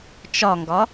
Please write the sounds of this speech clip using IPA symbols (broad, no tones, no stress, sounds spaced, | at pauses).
t͡ʃ ɒ ŋ ɡ ɒ